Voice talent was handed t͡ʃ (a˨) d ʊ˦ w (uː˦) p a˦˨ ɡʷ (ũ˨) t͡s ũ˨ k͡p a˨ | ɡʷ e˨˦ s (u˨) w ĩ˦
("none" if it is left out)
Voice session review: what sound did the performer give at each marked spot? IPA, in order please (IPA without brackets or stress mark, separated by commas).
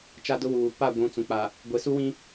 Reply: a˦, uː˨, ũ˨, u˦